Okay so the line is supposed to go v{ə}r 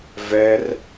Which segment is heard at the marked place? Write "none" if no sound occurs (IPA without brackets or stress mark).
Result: ɛ